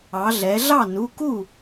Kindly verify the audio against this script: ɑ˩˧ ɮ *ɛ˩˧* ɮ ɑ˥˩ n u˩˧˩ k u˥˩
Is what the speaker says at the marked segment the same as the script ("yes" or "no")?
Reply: yes